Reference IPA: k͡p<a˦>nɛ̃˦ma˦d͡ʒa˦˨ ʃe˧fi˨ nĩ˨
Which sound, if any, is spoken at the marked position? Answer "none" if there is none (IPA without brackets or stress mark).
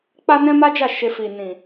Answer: a˦